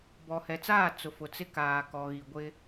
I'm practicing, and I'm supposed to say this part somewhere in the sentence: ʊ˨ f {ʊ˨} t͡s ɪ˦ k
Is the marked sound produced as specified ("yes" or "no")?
yes